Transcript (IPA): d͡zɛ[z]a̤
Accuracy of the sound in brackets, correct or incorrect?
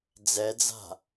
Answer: incorrect: d͡z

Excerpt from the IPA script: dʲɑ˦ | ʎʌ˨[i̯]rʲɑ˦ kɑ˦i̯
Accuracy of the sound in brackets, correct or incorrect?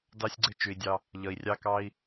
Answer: correct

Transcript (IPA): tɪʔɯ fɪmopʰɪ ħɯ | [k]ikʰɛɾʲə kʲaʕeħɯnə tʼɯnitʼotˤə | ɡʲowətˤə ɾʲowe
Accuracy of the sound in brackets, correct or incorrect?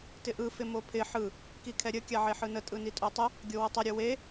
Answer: correct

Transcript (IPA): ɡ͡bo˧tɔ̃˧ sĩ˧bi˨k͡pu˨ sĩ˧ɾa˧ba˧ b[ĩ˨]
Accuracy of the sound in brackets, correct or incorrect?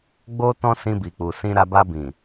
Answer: correct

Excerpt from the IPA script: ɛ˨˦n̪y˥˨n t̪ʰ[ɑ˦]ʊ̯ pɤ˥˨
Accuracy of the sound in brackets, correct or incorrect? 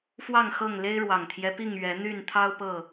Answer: correct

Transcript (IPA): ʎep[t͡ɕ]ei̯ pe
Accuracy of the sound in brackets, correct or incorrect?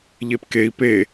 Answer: incorrect: k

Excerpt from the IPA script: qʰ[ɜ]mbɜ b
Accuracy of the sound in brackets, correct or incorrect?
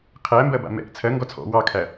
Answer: incorrect: æ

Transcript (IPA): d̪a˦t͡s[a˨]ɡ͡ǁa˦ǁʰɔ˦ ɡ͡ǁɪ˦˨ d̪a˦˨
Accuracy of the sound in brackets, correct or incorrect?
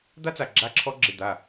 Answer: correct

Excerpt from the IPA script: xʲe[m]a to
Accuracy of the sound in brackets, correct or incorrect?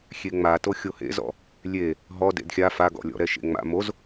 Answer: incorrect: ŋ͡m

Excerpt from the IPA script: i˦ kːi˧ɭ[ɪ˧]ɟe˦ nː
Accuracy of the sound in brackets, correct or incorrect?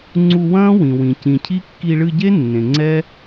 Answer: incorrect: ɨ˧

